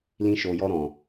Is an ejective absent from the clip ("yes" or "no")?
yes